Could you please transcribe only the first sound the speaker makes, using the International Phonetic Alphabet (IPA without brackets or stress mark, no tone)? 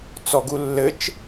t͡s